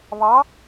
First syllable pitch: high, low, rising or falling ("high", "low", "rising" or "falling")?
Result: rising